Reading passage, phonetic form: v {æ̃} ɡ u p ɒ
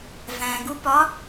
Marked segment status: correct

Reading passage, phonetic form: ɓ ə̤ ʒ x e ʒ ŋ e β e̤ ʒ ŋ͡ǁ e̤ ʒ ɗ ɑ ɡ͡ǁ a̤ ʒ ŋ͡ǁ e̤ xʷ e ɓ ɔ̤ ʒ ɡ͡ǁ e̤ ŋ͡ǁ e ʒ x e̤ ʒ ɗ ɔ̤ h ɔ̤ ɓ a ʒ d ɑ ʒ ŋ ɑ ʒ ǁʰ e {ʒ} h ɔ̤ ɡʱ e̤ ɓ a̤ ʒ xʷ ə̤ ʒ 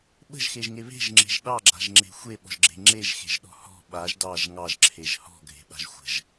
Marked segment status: correct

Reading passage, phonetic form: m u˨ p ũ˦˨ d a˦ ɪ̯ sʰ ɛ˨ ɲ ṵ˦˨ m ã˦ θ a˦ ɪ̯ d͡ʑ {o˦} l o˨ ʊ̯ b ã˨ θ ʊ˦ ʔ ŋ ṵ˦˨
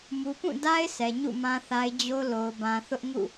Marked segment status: correct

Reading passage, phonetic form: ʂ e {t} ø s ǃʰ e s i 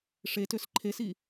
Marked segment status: correct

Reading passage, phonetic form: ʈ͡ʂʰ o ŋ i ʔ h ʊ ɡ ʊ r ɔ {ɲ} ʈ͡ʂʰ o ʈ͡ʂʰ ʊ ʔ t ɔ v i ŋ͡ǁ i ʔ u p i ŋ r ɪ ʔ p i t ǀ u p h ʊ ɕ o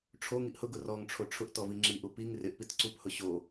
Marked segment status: incorrect: ŋ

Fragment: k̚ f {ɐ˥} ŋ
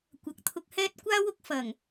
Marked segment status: incorrect: ɐ˨˩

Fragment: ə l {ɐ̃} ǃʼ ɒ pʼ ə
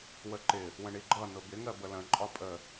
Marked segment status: incorrect: ə̃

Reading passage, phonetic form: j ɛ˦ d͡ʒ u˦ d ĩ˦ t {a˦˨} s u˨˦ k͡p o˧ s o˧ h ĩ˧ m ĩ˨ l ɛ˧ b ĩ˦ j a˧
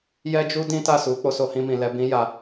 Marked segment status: correct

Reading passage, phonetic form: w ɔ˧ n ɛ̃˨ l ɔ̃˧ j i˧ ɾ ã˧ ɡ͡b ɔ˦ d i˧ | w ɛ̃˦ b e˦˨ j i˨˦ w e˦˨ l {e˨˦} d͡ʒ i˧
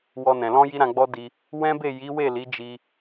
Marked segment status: incorrect: i˨˦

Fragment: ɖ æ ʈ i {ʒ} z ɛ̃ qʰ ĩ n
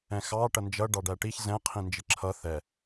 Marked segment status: incorrect: ç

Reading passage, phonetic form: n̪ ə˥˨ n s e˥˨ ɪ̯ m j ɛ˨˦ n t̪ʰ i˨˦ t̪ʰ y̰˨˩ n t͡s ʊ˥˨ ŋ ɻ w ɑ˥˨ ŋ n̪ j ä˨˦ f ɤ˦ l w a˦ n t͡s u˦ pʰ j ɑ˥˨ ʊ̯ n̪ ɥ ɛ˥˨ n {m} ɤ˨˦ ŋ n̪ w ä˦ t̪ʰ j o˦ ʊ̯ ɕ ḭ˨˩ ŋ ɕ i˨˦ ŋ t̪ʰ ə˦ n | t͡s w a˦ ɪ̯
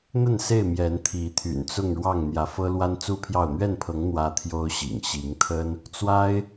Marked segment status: incorrect: pʰ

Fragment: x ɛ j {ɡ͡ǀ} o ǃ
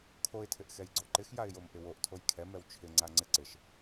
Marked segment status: correct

